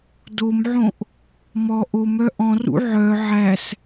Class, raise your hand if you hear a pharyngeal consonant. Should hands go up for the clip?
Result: yes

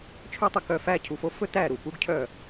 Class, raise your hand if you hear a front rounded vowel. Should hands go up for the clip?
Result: yes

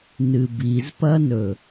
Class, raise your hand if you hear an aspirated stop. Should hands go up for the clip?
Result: no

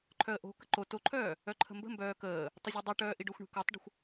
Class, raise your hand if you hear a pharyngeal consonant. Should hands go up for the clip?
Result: no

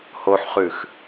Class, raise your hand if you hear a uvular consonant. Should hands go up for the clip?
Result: yes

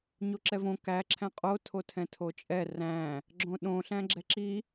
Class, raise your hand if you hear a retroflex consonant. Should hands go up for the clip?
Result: no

